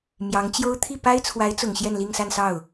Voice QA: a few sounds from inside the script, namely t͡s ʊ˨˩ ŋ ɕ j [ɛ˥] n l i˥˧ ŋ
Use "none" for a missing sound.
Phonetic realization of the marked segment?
ɛ˥˧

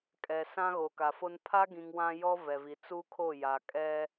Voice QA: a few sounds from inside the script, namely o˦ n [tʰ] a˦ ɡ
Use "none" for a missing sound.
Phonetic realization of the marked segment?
pʰ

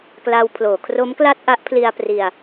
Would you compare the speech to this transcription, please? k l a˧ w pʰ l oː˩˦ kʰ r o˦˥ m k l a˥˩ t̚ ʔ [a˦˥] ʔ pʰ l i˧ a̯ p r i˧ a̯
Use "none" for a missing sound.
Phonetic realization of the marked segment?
a˦˥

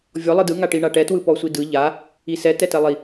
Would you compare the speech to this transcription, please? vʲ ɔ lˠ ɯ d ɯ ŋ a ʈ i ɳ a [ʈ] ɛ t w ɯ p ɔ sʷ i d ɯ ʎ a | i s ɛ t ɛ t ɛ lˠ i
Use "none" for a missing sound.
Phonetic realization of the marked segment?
ʈ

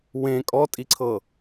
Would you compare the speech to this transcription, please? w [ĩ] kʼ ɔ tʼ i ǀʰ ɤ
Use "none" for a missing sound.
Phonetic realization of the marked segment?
ẽ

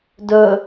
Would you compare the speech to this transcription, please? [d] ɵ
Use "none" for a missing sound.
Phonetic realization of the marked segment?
d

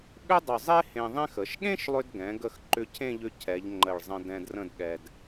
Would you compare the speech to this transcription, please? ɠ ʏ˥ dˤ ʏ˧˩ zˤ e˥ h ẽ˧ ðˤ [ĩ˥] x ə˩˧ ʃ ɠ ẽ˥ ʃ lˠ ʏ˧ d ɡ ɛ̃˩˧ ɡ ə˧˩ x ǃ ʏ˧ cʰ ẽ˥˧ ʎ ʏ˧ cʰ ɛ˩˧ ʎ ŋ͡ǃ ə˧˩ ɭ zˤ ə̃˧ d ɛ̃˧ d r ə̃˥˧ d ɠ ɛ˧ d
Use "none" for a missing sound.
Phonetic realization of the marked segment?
ẽ˥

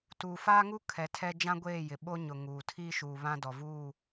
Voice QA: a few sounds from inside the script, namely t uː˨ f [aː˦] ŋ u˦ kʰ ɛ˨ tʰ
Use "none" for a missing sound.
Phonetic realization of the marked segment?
aː˦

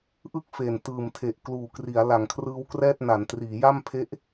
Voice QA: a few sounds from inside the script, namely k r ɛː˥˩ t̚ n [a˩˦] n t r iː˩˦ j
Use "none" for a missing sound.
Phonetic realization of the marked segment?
a˩˦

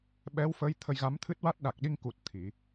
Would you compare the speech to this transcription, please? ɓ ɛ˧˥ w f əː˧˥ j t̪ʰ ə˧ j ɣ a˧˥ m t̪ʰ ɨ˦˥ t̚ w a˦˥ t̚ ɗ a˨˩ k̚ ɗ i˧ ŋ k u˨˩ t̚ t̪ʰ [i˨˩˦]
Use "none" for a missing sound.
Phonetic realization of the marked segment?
i˨˩˦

